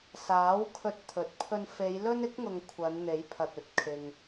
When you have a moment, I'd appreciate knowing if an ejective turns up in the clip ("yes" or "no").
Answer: no